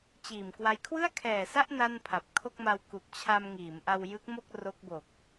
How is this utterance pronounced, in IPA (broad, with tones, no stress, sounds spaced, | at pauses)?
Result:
t͡ɕ iː˨˩ m k w a˦˥ j kʰ w ɯ˥˩ a̯ kʰ ɛː˨˩ s a˥˩ ʔ n a˥˩ n pʰ a˨˩ p̚ kʰ o˥˩ k̚ m a˧ w k u˨˩ k̚ t͡ɕʰ a˧ m ŋ iː˩˦ m ʔ a˧ w j ɯ˦˥ k̚ m o˥˩ k̚ r o˦˥ k̚ b o˨˩ k̚